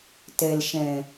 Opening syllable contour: low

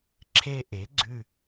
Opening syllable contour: high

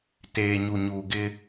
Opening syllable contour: low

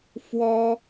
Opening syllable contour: high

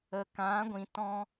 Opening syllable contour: low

